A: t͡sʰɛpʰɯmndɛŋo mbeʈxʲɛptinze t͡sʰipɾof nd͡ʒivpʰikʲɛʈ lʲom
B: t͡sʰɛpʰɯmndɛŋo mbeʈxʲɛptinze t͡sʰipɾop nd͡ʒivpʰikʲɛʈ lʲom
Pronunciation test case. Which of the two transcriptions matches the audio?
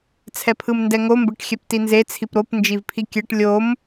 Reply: B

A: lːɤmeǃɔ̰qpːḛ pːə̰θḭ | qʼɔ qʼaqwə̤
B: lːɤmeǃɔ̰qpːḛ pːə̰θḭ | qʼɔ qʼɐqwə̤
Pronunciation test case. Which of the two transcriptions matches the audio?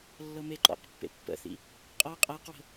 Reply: A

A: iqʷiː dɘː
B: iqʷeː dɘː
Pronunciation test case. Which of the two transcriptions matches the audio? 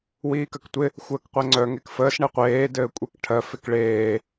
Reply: B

